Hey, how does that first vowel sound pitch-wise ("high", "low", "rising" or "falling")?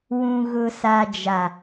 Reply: low